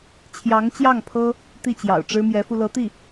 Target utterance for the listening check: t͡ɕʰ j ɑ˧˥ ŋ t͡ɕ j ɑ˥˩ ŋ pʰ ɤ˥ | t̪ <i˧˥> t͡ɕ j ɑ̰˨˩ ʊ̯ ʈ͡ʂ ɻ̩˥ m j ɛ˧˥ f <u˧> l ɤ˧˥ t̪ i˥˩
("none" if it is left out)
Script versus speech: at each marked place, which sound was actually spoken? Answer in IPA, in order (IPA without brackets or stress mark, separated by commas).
i˥˩, u˧